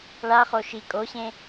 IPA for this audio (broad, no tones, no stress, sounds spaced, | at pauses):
ɭ a χ o ʃ i kʼ o ɕ ẽ